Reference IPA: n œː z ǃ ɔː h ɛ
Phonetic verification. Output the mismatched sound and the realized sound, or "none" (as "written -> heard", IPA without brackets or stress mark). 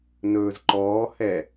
œː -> ɵː